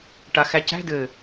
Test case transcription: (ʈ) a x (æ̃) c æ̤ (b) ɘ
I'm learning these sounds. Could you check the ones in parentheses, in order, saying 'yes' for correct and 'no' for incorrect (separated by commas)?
yes, no, no